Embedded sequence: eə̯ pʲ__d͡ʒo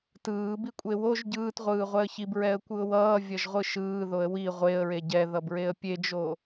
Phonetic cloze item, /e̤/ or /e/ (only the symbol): e